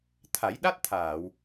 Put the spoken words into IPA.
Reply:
t̪ʰ a˨˩˦ j ɗ a˦˥ t̚ t̪ʰ aː˨˩˨ w

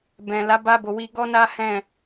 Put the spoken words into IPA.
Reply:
b ɛ̃˨ l a˨˦ b a˧ b o˨ w i˧ ɡ ɔ˦ n a˦ h ɛ̃˦˨

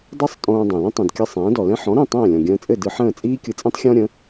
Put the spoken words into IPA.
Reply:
dˤ ɯ˥ sˤ tʼ õː˧ dˤ ɛ̃˩ l ə̃˥ tˤ ĩ˩ d kʲ ə˧ sˤ ɛ̃ː˩˥ d ɔ˩ l ɛ̃˥ ħ ɔ̃˩˥ ɾ ĩ˥˩ tˤ ɛ̃ː˥˩ lʲ ɔ̃˩ ɡʲ ə̃ː˧ t͡sʼ ɘ˥˩ d ɯ˧ ħ ə̃ː˥˩ t͡sʼ iː˥ kʲ ɯ˧ t͡sʼ ĩ˥ tˤ xʲ ɔ̃˥ ɾʲ ə̃˩˥

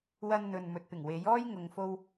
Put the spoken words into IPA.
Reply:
w ɐ˧ n n̪ ɵ˨ n m ɵ˨ t̚ p ɪ˨˩ ŋ w e˨˥ j ɔː˥ j ŋ ʊ˨ ŋ f o˧ w

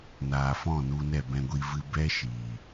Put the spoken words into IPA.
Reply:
n aː˨ f ɔ̃˦˨ n u˧ n ɛ˦˨ b ɛ̃˧ ɡʷ i˧ v ɨ˧ b ɛ˦ ʃ iː˨

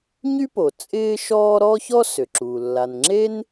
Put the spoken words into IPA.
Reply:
ɲ y˥ p o˩ t͡sʼ ɪː˥ ʃ ɔː˥ ɾ ɔ˥ ç ɔ˥ s ʏ˩ ǁ u˩ lː a˩ n ŋ͡ǁ e˥ n

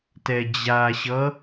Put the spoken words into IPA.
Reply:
t ɛ d͡ʑ a ɕ ʌ

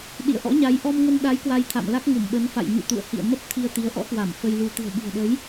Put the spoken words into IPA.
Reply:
ɗ ḭ˧˨ ə̯ ʔ ɔ̰˧˥ ɲ a˨˦ j ʔ ɔ˧ m ŋ ə˧ n ɗ a˨˦ j k w a˧ j t̪ʰ a̰˧˨ m l a˦˥ k̚ ŋ u˧˩ m ɓ ə˨˦ n f a̰˧˨ j ɲ ṵ˧˨ t̪ ṵ˧˨ ə̯ h ḭ˧˨ ə̯ m ə˦˥ p̚ t̪ʰ i˧ ə̯ t̪ i˨˦ ə̯ ʔ ɔ̰˧˥ k w a˧˩ m f ə˧ j l u˧ t̪ ɨ̤˨˩ ə̯ ɓ i̤˨˩ ə̯ ɗ ə˨˦ j

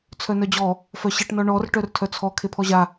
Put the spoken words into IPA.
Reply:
t͡sʰ œ n œ d͡ʑ ɔ | f œ ɕ e ʈ n ɔ ɳ ɔ r ʈ œ r tʰ œ t͡sʰ ɔ kʰ e pʰ ɔ ʑ a

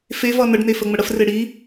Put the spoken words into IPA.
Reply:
f e v ʌ n ə ɖ n e f ə ŋ͡m ə ɽ ə f r e ɽ i

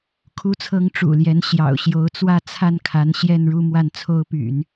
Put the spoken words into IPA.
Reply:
kʰ u˥ t͡sʰ ɤ˥ ŋ ʈ͡ʂ ṵ˨˩ l j ɛ˧˥ n ɕ j ɑ̰˨˩ ʊ̯ ɕ j o˧˥ ʊ̯ t͡s w ä˥˧ t͡sʰ a˥˩ n kʰ a˧˥ n ɕ j ɛ˥˧ n ɻ u˥˧ m w a˥˩ n t͡sʰ o˥ ʊ̯ p y̰˨˩˦ n

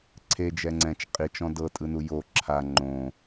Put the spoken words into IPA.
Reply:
ǀʰ e d͡ʒ ɛ ŋ͡ǀ ɛ̃ t͡ʃ qʼ i t͡ʃ ɔ̃ d ɤ tʼ ɯ n u j o ǁʰ a ŋ͡ǃ õ

